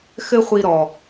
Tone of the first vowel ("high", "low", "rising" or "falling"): high